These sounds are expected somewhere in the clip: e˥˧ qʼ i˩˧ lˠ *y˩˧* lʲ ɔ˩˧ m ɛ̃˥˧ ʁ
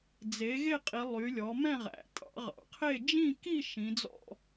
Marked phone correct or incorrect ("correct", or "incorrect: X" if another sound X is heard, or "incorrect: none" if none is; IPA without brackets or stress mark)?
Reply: correct